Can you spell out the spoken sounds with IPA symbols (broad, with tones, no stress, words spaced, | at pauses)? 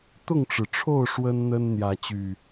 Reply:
t̪ʊ˥˨ŋʈ͡ʂɻ̩˩ʈ͡ʂʰo˥˨ʊ̯ ʂwə˦nn̪ə˦n n̪jä˨˦t͡ɕy˨˩